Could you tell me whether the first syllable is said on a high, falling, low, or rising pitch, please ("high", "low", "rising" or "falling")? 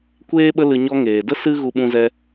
high